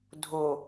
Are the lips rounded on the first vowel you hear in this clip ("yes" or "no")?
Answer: yes